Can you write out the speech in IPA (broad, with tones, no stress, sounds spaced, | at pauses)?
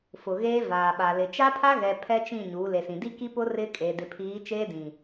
f ʊ˨ ɣ eː˦ v aː˨ ɓ a˨ l ɪ˨ t͡ʃ a˦ pʰ a˦ ɣ ɛ˨ pʰ ɛ˦ t͡ʃ ĩ˦˨ ɲ uː˨˦ l e˨ s ĩ˨ d i˦ k i˦ p ʊ˦ r ɪ˦ kʼ e˨ d ɪ˨ pʰ iː˨˦ t͡ʃ eː˦ d ĩ˨